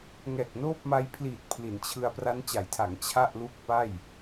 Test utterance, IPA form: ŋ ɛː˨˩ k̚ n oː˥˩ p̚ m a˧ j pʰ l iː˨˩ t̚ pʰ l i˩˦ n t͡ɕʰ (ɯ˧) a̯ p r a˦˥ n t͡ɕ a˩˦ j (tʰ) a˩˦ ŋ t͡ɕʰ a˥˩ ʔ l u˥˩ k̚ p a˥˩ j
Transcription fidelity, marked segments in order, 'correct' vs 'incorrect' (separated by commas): correct, correct